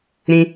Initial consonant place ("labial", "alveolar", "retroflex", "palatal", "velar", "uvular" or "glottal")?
alveolar